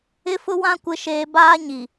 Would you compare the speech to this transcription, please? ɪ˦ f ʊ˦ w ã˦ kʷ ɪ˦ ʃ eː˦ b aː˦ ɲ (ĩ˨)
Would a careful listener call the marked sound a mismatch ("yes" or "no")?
yes